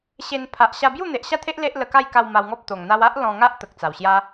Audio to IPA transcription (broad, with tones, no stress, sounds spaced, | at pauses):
ɕ e˧ n pʰ a˨ ʔ ɕ a˧ b j u˥˧ n̪ e˨ ʔ ɕ a˥˧ t̪ʰ e˦ ʔ l e˦ ʔ l ə˧ k a˥˧ j k a˧ w m a˧ w ŋ ɔ˦ p̚ t̪ o˨˩ ŋ n̪ a˧ w a˦ ʔ l ɔ̃˧ ŋ a˦ ʔ t̪ ə˨ k̚ t͡s a˨˩ w ɕ j a˦